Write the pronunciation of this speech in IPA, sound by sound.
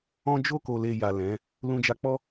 ɔ̃˦ d͡ʒo˧ko˨le˨ ja˨lɛ̃˨˦ | lũ˧d͡ʒa˧ k͡pɔ˦

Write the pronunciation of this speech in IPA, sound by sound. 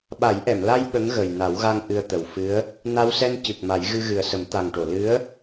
ɓa˨˩˦jʔɛ˨˩˨mla˧j ɓə˧˥ŋɣə˨˩j na˨˩˦wɣa˧ŋ ʔɨ˧ə̯t̪ə˨˩wfɨ˧˥ə̯ | na˧wsɛ˧n cɨ˨˩k̚ ma˨˩˦jɣɨ˧ɣɨ˨˩ə̯sə˨˩˦m t̪a˨˩ŋʈo˨˩˨ lɨ˧˥ə̯

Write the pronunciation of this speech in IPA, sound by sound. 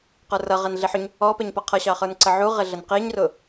qə˞rʌ ʁɛnɮiħʊɲ | ɔpɛɲpʌ qʰʌɕɑχə˞nǀə ʕuʁɪ ɮənqiɲrʊ

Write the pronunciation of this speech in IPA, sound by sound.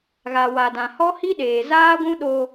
ɣa˨wa˨ dã˨hɔ˦hi˦ɗeː˨ zaː˦ɡʷũ˦ ɗo˦

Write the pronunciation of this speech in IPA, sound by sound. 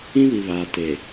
ĩ˦βi˨βaː˨ te˨

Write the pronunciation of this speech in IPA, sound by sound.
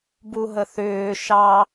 buɦəθʏː ʃɑ

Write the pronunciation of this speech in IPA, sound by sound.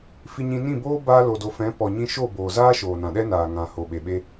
fi˧ɲĩ˧ nĩ˦˨boː˦ baː˧lo˨do˨fɛ̃˨˦ pɔ˨ɲĩ˧ʃo˦˨ boː˨zaː˦ ʃoː˨nã˨ɗɛ˦ naː˨ ŋã˨ho˨ɓe˨ɓe˦

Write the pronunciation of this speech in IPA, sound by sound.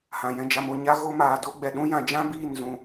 hã˨jɛ̃˧d͡ʒa˧mo˧ ɲa˦ ɣo˦maː˧do˦ ɡ͡bɛ˨ ɗũ˦ jã˧d͡ʒã˦biː˦˨n zũ˧

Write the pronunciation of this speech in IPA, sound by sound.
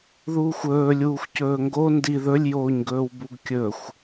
ðuːxʷɵːlʲuːxʷ cɵːŋɡo ndi ðɵlʲjoːɲɡɵːw buɡkʲɵxʷ

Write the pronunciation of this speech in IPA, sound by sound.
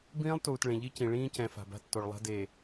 bĩː˦lˠtuː˨t ɭẽ˨ʎi˦cĩ˨ ɭĩː˦cɛ̃˨ fa̤˨ba̤˦tːo˨ɭlˠa̤˦ de˨

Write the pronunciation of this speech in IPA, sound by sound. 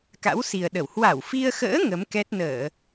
ka̰˧˥wsi˨˩ə̯ ɗə˧˩w hwa˧˩wfi˧ə̯xə̰ː˧˥ ŋə˨˦mkɛ˦˥t̚ nəː˧˩˨

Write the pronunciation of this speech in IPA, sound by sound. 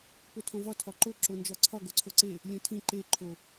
potʰõvɒ tʰɒǃo ǁond͡ʒɒǀʰɒ ɡoǀʰoǀe | lʲõtʰĩ ǃe ǃʰo

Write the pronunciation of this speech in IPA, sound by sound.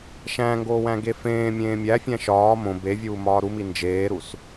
ʃæ̃ŋɡoːwæ̃ ɡefẽː mʲẽːmʲæfʲæ̃ ʃɒː mõ bevʲuː mɒːɾumi nd͡ʒeːɾus

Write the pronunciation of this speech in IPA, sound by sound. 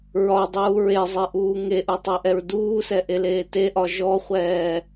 ɹɒdˤuː ɹezˤeʔuː ŋeʔutˤɛʔɛɹ duːsɛʔeleː teʔɒ ʒɔχʷɛː

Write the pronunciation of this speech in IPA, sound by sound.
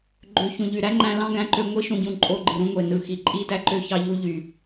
ɡ͡ǃø˨ çũ˨ ʎy˨ɾæ˦ŋ͡ǃæ̃˧ lɑ̃˦ɡæ̃˧ǃø˧ ŋʷi˦ʃũ˧ɟũ˧ ǃʼo˧ɡ͡ǃɯ˨ɾũ˦ŋʷe˨ nɯ˨ xi˨ǃʼi˦dæ˦ǃø˦ çɑ˧ʎu˧ ʎy˨

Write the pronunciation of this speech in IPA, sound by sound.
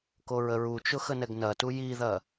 koɹəɹut͡ʃʊ xənɛɡnɐtu jiðɐ

